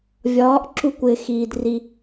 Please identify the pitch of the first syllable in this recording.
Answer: rising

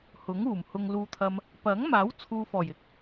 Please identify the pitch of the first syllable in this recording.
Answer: rising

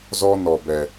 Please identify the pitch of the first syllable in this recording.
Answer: high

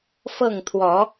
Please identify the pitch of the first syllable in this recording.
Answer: falling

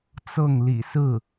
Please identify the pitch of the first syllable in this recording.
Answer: falling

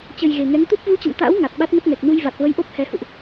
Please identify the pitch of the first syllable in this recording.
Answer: low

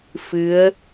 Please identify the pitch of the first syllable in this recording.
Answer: rising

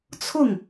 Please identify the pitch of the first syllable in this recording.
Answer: falling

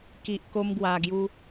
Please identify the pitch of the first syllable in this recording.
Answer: low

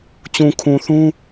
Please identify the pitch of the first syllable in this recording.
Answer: low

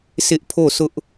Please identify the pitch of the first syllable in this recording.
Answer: high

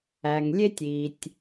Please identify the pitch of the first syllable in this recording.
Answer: low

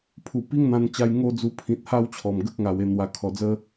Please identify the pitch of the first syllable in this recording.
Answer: low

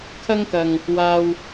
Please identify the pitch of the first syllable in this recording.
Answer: high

